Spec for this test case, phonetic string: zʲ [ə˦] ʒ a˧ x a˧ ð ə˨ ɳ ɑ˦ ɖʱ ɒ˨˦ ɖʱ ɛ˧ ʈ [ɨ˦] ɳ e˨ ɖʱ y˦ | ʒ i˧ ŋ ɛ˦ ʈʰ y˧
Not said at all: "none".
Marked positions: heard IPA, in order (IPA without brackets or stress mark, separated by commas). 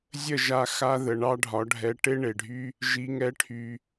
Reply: ə˦˨, e˦